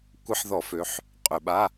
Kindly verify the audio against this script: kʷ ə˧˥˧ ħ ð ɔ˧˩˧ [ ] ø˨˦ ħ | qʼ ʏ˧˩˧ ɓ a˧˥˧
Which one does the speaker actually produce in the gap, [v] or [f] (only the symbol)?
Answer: f